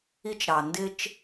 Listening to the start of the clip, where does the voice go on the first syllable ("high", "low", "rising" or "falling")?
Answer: high